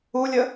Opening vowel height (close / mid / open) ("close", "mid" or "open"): close